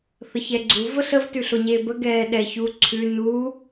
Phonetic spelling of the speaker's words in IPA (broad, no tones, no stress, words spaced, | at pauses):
θəçɛɡ͡ǀuv əɬəv tʉɬoɲebə ɡɛːɗɛçu ǀʰʉ nu